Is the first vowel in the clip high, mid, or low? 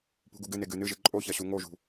high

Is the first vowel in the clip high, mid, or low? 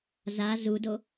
low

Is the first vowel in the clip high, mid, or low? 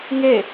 mid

